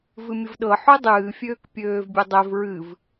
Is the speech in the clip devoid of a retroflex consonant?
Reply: yes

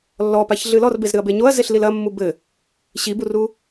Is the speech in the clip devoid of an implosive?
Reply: yes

